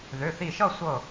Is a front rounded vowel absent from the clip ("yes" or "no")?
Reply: no